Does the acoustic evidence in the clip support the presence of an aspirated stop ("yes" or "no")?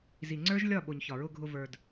no